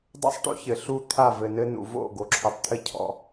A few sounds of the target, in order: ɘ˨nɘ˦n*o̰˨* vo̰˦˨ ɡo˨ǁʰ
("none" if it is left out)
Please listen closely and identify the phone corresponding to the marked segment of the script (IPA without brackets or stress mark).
ṵ˨